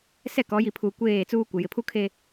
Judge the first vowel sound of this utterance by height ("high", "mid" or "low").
mid